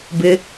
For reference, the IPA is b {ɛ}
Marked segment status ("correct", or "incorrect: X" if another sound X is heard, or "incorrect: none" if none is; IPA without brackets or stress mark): incorrect: ɪ